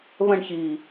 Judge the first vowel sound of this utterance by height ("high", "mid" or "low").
mid